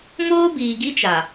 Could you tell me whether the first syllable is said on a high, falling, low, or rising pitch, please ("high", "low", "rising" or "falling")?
high